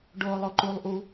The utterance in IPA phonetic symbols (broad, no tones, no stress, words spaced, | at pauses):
ɖoːlˠoǃulˠʔu